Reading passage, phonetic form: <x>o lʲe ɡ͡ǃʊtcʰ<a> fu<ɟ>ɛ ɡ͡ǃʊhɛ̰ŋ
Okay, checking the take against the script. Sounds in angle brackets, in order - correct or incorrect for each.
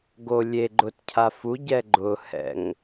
incorrect: ɡ, correct, correct

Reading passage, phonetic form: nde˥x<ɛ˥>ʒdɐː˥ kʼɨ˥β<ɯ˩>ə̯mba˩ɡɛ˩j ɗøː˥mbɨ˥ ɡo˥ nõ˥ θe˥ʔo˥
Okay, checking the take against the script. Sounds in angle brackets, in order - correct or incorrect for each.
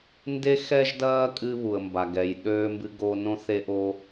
correct, incorrect: u˩

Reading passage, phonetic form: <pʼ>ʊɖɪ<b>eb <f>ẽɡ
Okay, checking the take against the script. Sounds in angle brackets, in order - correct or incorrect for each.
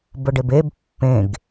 incorrect: b, correct, incorrect: pː

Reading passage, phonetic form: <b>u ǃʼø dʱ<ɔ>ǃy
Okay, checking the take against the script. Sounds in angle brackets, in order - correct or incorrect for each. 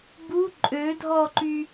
correct, correct

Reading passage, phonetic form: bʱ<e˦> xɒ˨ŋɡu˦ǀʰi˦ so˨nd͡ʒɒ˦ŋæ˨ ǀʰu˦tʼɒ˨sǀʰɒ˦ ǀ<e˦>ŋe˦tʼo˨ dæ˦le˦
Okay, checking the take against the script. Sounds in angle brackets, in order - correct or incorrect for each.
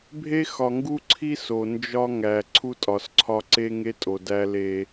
correct, correct

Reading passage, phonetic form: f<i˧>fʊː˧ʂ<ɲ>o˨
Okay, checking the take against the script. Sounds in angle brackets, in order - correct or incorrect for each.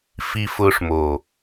correct, incorrect: m

